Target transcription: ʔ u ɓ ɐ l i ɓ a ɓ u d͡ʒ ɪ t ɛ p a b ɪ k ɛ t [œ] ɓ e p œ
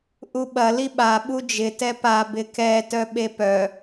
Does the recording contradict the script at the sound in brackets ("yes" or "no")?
no